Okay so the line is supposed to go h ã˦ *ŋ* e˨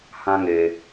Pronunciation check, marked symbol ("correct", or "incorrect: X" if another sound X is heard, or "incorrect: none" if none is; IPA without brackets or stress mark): correct